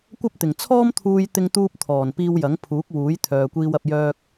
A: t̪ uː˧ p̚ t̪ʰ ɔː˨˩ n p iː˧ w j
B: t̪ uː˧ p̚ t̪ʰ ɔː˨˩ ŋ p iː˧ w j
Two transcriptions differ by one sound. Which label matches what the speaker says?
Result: A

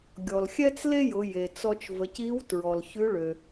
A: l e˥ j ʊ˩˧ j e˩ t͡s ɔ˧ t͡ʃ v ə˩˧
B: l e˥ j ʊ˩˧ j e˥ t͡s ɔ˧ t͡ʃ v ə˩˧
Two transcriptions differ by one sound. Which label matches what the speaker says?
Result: A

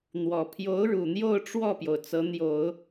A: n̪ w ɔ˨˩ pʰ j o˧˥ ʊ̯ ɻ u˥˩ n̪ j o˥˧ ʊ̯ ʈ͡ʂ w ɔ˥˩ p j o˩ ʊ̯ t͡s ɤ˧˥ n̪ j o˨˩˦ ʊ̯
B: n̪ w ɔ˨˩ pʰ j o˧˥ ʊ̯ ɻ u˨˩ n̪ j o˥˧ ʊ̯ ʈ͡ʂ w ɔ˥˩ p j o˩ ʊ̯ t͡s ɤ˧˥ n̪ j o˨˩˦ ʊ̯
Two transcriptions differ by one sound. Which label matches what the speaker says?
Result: B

